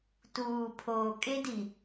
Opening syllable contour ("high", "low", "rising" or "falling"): low